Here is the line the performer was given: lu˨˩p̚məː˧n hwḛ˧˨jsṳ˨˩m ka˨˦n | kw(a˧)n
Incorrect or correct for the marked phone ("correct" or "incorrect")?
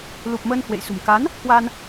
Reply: correct